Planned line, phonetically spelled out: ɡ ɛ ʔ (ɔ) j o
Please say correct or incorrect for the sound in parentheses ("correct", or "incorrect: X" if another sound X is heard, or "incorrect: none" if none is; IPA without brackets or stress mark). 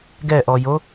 correct